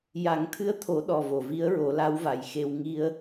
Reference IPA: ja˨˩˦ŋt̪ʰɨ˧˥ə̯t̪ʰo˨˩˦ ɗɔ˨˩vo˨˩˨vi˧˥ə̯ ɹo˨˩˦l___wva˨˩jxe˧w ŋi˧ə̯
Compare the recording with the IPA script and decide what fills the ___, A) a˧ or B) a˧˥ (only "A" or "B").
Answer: B